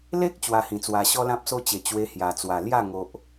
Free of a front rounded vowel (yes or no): yes